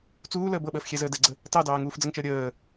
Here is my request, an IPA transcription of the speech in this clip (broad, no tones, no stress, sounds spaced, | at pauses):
t͡s uː l əː b ɤ ɓ əː f xʲ ɛ z əː d ɛ ɡ͡ǀ ə | t ɑ d ɑː ŋ uː f d͡z ə ŋ t͡ʃ əː ɾʲ əː